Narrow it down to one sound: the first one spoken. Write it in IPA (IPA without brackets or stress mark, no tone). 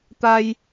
t̪